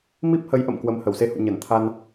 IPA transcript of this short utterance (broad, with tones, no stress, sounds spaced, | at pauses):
m i˦˥ p̚ h ə˨˦ j ʔ ə̰˧˨ m k w ə˨˦ m h ə˧˩ w s e˧ h ṵ˧˨ ɲ ə˧˩ n t̪ʰ a˧ n